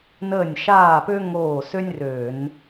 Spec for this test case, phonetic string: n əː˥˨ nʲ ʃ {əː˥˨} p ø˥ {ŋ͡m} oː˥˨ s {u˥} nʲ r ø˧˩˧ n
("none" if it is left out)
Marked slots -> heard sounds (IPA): aː˥˨, ŋ, ø˥

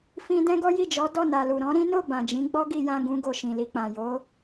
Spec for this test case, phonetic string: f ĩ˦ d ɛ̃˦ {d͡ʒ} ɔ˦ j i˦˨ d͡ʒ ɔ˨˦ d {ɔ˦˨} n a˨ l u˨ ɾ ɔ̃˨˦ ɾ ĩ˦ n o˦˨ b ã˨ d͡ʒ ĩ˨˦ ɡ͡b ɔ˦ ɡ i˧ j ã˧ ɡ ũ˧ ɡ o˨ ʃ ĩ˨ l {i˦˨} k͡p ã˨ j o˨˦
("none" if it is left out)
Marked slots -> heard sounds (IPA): ɡ, ɔ˦˨, i˧

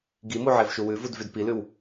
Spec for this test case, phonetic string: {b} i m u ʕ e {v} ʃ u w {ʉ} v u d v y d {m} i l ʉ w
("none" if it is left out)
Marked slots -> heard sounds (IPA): ɡ, v, ʉ, p

